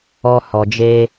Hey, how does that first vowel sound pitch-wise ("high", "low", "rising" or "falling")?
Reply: high